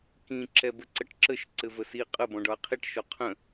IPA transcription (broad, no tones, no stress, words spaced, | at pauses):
kĩ ǁɛbəǀəʈǁəʃ ǀɘvəsi qʼə bɔ̃ɖɒɐ̯qʰiʈ ʃɔqʰə̃